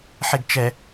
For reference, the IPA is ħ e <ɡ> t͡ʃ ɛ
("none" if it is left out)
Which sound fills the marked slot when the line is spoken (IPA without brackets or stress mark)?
ɡ